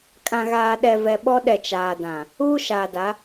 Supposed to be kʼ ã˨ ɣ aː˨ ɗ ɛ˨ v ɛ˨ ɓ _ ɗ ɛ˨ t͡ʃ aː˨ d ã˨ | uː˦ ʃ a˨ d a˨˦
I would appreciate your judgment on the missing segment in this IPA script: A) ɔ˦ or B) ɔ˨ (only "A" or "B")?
A